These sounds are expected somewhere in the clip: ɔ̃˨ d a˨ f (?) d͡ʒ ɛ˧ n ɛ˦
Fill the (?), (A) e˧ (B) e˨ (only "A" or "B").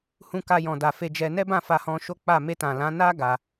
A